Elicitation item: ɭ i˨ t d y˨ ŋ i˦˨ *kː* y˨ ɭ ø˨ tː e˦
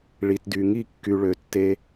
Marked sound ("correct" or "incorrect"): correct